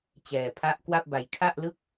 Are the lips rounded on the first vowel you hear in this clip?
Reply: no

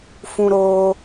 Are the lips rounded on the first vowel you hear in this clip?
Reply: yes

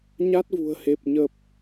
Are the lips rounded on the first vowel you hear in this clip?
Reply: no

